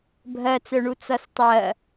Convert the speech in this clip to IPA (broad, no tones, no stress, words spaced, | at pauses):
bʱɜt͡sœɳu t͡sʌstˤɜ